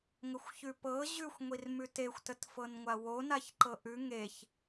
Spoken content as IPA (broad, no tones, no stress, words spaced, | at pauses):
ŋəxʷçʉpɤ ʑʉxʷ ŋʷirmʉtexʷ tətfɤnŋʷawo naçǃɤʔʉ ŋeç